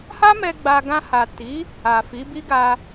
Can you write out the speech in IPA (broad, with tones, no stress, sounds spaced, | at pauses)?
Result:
h a˦ m ɛ˧ ɡ͡b a˧ ɡ ã˧ h a˨ t i˨˦ | a˨ f i˨˦ b i˦ ɡ a˧